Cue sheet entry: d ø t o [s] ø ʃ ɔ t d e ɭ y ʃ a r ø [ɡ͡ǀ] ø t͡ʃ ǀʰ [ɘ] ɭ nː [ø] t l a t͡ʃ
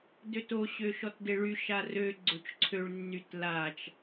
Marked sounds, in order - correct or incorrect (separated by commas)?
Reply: incorrect, correct, incorrect, incorrect